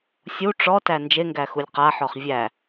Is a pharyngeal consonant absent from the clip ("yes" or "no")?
no